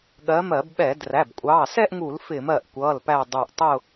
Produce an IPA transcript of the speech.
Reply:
ɠɜ˨˦mɜ˧˩˧b ɓɛ˧˩˧dræ˩˧˩b kʷʼɑ˩˧˩sɛ˥˧ʔŋu˧˩˧l fɪ˧˩˧mɜ˧˩ʔkʷʌː˩˧˩l pæ˧˩ dˤu˧˩ʔtˤʊ˥˧

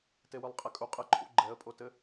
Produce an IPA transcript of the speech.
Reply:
tewɨlˠqʼɛkʼu qʼɘǃʰṵ ɡ͡ǃɛə̯pʼotɘ

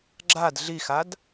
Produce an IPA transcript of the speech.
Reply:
ɡ͡ǁad ɮixad

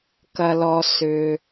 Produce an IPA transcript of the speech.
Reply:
kɐ˩lɔ˩ sʏ˩

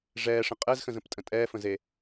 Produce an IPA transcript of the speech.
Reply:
ʐɛːʂə̃ qʼɛzxə̃zə̃ptʼə̃ tʼɛːfə̃ze

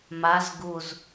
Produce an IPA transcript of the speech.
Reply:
maz ɡuz

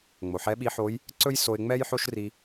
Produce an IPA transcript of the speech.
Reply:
ŋ͡mo˩ħɛ˧˥ɓi˧˥ħo˧˥j | ǀɵ˥j so˧ɪ̯ŋ͡mɛ˥jħo˥ʃ ri˧

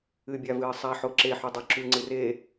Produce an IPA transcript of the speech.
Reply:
ɨbʲa vɨːsˤa ħoǁeħu dˤoǁʉŋ͡ǀɨ re

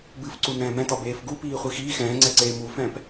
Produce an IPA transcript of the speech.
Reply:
bɨfǀu nɛ̃ːmɛ̃tɒ beːfɡu piːχʷixiː xɛ̃ːŋ͡ǀɛǀeː mufɛ̃ːp

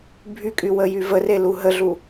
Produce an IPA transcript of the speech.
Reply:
bʱykʼy wəjyvəre luɦəɮu

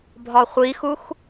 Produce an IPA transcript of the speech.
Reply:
bʱɒχʷixux

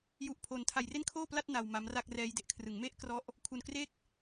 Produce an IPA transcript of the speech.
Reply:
ju˦˥ʔpʰo˧n tʰa˧jre˥˩nkʰoː˥˩pla˥˩t̚ na˧wma˦˥mra˥˩k̚rɛː˦˥j de˨˩ʔkʰrɯ˩˦ŋme˥˩ʔkrɔ˦˥ʔ | kʰu˧nkre˥˩k̚

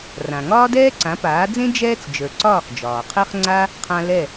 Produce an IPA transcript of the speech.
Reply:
rã˩ ŋɒː˥dɛː˥ǀã˩˥paː˩˥ d͡zẽ˥ d͡ʒɛː˥t͡s d͡ʒə˞˩ǀɒː˥˩χ d͡ʒɒː˩qʰɛ˥χŋ͡ǀa˥ | qʰã˧ lɛ˥˩

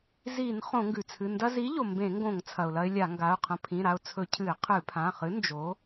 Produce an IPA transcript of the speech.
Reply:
zi˧˩˧n χõ˧˩˧ŋɡʉ˩t͡sʰɨ˩˧˩ ndɐ˧zi˨˥ʎo˩ mbẽ˧˩˧ŋɡõ˧˩˧ŋ t͡sʰɐ˩ʊ̯lɐ˧ɪ̯ lʲa˧˩˧ŋɡa˩˧˩ʊ̯qʰɐ̃˧ pʰĩ˩˧˩ɾa˧ʊ̯ t͡sʰɵ˧˩˧cʰɨ˧˩˧ɪ̯ qʰɨ˧˩˧pʰã˩˧˩χɨ˨˥ nd͡ʒo˨˥

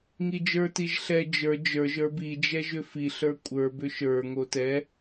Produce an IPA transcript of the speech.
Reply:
ŋid͡ʒə˞tiʒ ɬɛ d͡ʒə˞ d͡ʒə˞ʒ ə˞bid͡ʒɛ ʒʏfiɬə˞ kʷʼə˞bʏ ʃə˞ŋo tɛ

